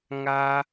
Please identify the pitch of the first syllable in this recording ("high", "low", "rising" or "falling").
high